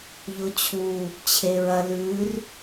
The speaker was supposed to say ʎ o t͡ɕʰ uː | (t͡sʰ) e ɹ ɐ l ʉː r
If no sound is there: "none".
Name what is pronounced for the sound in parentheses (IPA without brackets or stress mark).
t͡ɕʰ